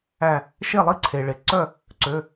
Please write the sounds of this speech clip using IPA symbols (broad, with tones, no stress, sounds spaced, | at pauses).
æ˧˩ | ʃ e˥˩ lˠ i˥˩ ǀʰ e˩ ɭ e˩ ǀ œ˥˩ | ǀ ø˩˧˩